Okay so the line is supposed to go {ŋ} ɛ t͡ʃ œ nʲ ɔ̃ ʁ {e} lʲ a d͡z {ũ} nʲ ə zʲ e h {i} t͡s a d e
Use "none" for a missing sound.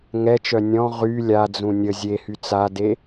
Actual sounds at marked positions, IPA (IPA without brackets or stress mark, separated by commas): ŋ, y, ũ, y